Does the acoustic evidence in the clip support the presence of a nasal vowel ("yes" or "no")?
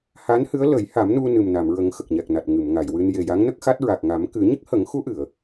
no